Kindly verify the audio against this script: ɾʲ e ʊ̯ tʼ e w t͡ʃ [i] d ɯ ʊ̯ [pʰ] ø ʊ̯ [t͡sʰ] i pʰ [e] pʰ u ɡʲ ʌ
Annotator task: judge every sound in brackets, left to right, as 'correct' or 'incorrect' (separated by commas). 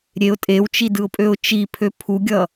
correct, incorrect, incorrect, incorrect